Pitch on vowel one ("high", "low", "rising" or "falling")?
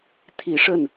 low